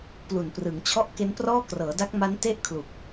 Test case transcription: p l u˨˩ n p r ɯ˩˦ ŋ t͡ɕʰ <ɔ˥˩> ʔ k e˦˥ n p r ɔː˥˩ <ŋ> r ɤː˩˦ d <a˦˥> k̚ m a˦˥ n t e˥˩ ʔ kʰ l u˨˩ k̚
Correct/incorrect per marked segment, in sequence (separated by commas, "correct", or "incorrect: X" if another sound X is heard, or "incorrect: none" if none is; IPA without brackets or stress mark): correct, incorrect: k, correct